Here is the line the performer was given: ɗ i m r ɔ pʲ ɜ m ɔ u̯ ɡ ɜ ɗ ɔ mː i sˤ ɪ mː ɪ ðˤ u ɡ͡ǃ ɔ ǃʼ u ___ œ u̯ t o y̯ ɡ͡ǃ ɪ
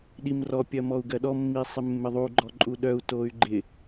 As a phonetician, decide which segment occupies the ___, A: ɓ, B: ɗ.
B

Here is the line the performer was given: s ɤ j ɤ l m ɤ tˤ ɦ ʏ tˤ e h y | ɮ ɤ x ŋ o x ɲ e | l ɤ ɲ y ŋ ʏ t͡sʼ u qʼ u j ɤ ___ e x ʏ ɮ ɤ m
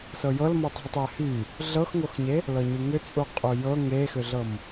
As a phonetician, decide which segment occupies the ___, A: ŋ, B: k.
A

